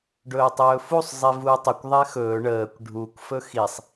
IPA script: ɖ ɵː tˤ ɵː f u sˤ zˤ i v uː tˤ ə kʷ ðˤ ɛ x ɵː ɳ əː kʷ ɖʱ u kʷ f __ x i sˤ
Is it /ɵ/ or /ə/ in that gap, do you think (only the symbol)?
ɵ